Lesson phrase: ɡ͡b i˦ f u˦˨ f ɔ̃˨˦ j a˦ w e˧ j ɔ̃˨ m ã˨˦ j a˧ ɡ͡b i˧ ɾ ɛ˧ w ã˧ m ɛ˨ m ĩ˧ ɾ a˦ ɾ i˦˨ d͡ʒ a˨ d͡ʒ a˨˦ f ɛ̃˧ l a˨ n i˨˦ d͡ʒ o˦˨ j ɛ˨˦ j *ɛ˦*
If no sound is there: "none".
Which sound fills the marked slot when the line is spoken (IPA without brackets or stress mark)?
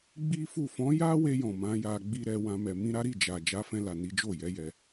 ɛ˧